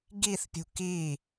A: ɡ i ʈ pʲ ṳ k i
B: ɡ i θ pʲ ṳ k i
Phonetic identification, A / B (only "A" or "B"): B